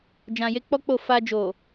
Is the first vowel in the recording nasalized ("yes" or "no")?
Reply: yes